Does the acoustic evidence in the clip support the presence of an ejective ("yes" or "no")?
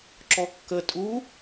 yes